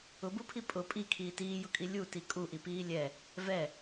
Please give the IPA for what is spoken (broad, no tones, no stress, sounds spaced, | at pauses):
ʊ b u pʰ i pʼ ʊ pʼ i kʰ iː t iː j ʊ kʼ i lʲ u t i kʼ u ʔ i p iː lʲ ɛ | v ɛ